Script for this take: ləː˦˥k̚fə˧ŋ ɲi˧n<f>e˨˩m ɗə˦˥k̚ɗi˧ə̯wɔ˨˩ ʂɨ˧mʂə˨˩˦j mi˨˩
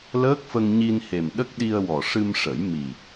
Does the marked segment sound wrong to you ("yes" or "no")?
yes